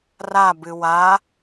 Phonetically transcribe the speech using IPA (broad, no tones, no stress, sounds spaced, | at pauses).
r a b ɨ w a